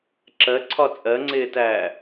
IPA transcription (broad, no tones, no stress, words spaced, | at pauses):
ǁɜǀʰɒ t͡sʼɜŋ͡ǀɪːtæː